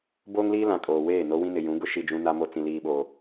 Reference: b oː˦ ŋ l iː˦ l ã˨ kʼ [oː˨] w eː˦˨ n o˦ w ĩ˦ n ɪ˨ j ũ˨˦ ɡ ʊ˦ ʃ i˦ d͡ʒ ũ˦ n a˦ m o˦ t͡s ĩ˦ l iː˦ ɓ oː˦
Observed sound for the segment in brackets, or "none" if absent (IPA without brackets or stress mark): oː˨